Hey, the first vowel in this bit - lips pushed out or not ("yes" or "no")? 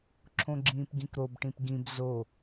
yes